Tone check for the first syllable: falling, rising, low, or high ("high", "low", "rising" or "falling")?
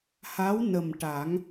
rising